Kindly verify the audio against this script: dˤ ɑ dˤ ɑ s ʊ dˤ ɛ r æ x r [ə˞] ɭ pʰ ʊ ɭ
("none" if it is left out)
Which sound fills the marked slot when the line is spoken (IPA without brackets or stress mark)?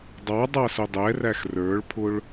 ə˞